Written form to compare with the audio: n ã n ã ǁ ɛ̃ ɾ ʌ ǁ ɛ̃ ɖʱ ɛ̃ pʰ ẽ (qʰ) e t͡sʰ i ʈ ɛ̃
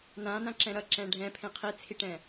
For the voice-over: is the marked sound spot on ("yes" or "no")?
yes